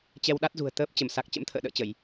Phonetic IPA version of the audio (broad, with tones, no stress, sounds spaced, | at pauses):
t͡ɕ ɛ˧ w ɗ a˦˥ t̚ z ṳ˨˩ ə̯ t̪ əː˦˥ p̚ t͡ɕ ə˧˩ m s a˨˩ k̚ t͡ɕ ə̰˧˥ m t̪ʰ ə̰ː˧˨ ɗ ə̰ː˧˨ t͡ɕ ə˧˩˨ j